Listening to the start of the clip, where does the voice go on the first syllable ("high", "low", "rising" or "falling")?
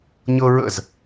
high